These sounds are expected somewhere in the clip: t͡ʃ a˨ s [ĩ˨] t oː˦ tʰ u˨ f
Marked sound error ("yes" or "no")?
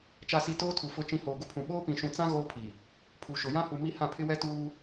yes